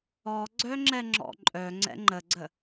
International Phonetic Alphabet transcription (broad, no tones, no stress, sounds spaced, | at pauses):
ɔ ɡ͡ǀ œ ŋ͡ǁ ɛ ŋ͡ǁ ɔ̰ ǃʼ œ ŋ͡ǀ ɛ̰ ŋ͡ǃ ə ɡ͡ǀ ə